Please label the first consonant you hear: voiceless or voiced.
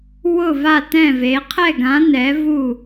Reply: voiced